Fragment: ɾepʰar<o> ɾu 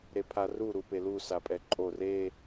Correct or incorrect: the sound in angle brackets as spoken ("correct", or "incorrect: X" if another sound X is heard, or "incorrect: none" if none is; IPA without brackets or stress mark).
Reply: incorrect: u